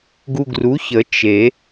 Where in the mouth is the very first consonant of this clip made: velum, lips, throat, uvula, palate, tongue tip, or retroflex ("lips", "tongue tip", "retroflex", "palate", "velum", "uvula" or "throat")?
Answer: velum